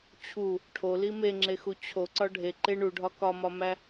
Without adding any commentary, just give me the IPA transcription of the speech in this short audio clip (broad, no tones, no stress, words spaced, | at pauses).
t͡ɕʰu | ʈʰoli meŋ͡ǁexu t͡ɕʰoǀɒ ɖʱe ǃe ɳuɖʱɒ kɒmɒmæ